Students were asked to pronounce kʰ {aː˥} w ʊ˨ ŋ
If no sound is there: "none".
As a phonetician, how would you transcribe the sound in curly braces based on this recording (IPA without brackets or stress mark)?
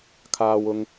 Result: aː˨